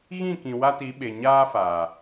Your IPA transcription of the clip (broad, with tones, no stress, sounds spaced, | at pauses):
ɣ ĩ˦˨ k ĩ˨ w a˦ t i˨˦ ɓ e˨ ɲ aː˦ f aː˨